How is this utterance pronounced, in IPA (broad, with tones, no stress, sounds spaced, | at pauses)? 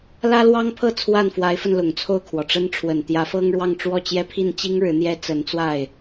l ä˥ l w ɑ˥ ŋ pʰ ɤ˥˧ t͡sʰ w a˥˩ n f w a˧˥ ɪ̯ f ə˧ n l ʊ˨˩ ŋ t͡sʰ o˥˩ ʊ̯ kʰ w ɔ˩ ʈ͡ʂ ə˥ n ʈ͡ʂʰ w ə˨˩ n t̪ j ä˧˥ f ɤ˥ ŋ ɻ w ɑ˥˧ ŋ ʈ͡ʂ w ɔ˥˩ t͡ɕ j ɛ˥ pʰ i˥˩ n t͡ɕ i˥ ŋ ɻ ɻ̩˧˥ n̪ j ɛ˥ t͡s ə˧˥ n t͡s w a˥˩ ɪ̯